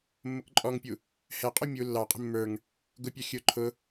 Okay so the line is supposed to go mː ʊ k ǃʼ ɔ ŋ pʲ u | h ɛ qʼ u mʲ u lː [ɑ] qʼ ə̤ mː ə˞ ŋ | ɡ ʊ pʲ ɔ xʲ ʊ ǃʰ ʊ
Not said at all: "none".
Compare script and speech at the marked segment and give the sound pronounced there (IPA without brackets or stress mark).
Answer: ɑ